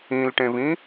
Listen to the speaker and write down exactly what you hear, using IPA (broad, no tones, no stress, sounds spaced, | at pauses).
ĩ l ʈ ẽ v ĩ